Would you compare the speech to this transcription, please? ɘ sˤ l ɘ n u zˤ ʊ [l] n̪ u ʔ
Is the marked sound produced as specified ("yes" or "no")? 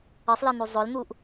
yes